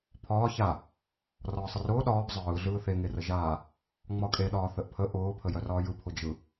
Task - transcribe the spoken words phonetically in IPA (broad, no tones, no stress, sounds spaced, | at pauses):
pʰ ɒː ç a | r ɒː sˤ ə r ʊː ɗ ɒː b zˤ ɯː ɮ ɯː θ e ŋ e r ə ʒ aː | ŋ͡m ɒ kʼ e ɗ ɒː θ ə ʔ pʰ ə ʔ ʊː pʰ ə j œ r ɒː j ɯ pʰ ʊ d͡ʒ ɯ